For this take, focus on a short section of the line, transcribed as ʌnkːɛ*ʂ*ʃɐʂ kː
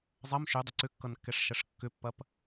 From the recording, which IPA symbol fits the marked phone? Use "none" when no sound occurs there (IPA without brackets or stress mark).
ʂ